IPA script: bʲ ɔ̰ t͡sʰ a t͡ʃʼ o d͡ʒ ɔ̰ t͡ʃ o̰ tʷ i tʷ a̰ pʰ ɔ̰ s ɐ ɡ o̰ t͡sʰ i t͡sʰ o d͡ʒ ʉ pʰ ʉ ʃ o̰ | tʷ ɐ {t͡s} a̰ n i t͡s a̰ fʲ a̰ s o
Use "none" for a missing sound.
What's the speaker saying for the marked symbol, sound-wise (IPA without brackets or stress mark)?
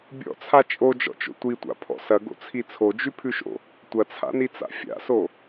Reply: t͡sʰ